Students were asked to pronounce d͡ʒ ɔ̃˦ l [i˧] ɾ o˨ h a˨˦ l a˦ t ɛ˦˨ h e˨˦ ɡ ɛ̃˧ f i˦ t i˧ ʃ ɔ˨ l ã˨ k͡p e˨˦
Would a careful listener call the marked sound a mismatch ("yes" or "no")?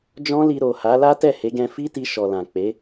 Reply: no